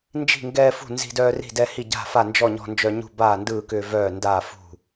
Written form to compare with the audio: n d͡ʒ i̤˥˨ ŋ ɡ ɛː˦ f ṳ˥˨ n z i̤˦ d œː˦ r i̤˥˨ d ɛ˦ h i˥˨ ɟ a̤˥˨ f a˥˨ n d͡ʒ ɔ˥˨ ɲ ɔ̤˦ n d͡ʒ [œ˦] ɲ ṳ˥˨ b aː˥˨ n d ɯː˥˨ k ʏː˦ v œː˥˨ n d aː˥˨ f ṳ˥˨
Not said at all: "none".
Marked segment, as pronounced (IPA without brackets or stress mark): œ˦